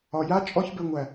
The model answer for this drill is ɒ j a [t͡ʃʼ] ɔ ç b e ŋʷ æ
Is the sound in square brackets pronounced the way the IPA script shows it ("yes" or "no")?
yes